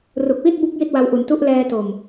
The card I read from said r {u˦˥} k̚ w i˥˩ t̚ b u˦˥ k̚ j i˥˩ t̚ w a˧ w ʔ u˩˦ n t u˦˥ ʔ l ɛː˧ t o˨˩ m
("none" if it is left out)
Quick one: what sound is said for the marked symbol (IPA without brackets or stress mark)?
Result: u˨˩